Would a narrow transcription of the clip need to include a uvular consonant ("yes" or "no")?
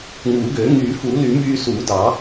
no